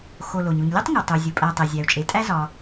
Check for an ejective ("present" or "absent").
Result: present